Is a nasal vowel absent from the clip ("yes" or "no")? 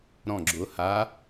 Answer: no